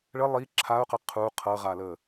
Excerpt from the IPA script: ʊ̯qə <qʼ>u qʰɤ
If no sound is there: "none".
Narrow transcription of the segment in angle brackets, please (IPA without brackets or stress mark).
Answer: qʰ